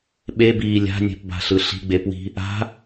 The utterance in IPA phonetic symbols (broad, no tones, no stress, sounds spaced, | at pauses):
ɓ e b iː lʲ a̤ nʲ ɛ̤ p b a̤ ɬ ɯ ɬ i̤ ɡ͡b e p w i̤ | a̤